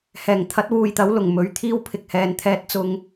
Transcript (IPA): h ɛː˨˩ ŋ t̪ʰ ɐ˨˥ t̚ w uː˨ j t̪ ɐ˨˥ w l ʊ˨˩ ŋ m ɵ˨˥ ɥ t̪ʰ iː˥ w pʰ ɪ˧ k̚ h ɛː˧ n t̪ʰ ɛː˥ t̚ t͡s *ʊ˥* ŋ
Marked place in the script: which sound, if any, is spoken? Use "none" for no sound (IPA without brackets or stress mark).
ʊ˥